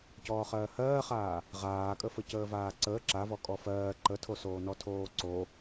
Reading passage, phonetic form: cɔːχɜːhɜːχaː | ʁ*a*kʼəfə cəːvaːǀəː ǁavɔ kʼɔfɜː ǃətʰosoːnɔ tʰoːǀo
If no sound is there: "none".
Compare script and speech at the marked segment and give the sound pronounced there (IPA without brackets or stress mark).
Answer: aː